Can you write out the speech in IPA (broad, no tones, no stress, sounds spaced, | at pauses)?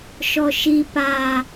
ʃ ɔ ʃ i p a